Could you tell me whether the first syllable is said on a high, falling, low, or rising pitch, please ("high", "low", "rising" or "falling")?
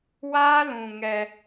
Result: high